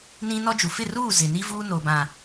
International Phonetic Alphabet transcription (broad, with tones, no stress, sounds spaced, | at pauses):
n ĩ˦ n ɔ˦ d͡ʒ u˨ f ɪ˦˨ r uː˦˨ z ɪ˨ n i˦ v uː˦ n o˨ b ã˨